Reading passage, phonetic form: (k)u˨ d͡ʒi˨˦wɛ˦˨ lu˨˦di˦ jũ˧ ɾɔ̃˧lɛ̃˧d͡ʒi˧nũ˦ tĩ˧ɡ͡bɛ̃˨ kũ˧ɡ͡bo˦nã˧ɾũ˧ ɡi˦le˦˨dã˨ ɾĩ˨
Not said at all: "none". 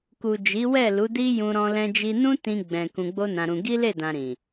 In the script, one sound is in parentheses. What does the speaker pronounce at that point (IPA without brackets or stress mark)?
k